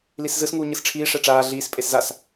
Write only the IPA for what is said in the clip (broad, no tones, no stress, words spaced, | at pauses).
liszɯsŋuː ɲɯsʈ͡ʂʰiːʂɛ ʈ͡ʂaː ɮiːs pʼeszas